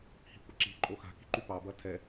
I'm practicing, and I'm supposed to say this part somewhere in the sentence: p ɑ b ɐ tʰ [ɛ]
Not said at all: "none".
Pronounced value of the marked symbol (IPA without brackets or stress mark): ɛ